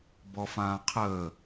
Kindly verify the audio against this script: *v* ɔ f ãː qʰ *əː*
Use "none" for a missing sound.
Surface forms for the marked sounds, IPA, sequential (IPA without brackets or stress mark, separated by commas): b, əː